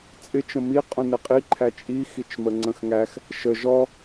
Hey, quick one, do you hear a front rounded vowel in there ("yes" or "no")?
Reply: no